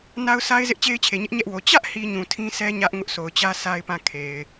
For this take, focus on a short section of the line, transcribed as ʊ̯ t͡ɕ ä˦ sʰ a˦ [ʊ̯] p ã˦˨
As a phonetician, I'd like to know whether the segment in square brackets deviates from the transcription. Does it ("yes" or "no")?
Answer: yes